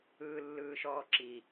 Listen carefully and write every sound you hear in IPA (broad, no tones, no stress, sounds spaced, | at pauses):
ɯː lː ɯː ʃ ɔː ǁ i